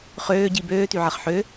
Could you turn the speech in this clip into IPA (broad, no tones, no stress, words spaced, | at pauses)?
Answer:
χøːɟi bøːtyʕɐχ ħø